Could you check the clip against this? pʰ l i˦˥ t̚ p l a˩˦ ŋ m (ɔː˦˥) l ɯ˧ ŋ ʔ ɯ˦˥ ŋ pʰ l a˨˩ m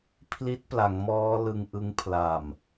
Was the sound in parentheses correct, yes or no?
yes